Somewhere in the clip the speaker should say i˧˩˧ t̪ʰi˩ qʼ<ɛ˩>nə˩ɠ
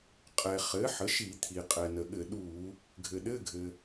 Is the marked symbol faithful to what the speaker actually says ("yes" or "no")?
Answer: yes